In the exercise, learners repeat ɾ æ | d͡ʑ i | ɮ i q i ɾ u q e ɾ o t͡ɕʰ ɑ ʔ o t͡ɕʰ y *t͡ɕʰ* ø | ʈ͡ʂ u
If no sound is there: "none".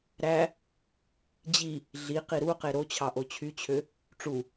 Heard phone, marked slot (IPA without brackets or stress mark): t͡ɕʰ